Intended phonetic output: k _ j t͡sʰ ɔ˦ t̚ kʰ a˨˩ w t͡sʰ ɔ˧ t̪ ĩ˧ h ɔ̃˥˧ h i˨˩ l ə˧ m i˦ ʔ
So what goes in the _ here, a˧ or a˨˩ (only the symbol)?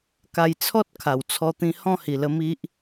a˧